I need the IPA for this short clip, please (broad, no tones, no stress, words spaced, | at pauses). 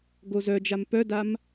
ɡozœd͡ʒam pœdam